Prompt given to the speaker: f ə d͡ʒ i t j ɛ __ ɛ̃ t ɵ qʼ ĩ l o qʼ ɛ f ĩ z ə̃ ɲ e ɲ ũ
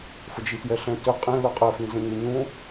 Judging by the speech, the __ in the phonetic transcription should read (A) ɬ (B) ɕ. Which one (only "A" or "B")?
A